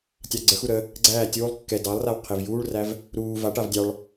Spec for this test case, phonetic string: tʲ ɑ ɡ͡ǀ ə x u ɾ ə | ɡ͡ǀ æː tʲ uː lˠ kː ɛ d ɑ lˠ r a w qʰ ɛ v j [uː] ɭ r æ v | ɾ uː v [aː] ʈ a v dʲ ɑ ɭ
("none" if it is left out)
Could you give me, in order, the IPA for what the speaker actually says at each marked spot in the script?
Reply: uː, a

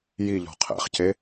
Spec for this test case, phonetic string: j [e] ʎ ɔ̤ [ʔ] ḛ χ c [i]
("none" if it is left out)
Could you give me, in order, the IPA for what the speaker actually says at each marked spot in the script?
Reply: i, qʰ, e

